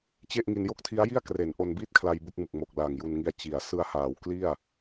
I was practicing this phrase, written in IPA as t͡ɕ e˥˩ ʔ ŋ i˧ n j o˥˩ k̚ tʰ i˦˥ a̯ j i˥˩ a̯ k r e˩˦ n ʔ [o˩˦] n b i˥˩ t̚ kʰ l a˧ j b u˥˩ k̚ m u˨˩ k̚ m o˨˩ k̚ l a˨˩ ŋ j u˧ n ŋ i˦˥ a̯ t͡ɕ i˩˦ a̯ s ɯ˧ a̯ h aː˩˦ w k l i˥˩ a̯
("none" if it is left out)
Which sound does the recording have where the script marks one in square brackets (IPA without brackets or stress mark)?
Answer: o˧